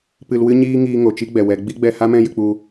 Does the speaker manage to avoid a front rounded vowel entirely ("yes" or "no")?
yes